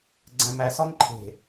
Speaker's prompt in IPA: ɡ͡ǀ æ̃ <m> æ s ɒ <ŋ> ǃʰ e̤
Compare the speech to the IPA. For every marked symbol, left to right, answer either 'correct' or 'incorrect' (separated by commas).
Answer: correct, correct